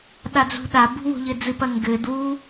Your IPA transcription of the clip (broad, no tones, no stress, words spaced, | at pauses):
ɗad͡zṳɗabṳ wo̤ʎɘd͡zɨpɐ ŋɡɘd wu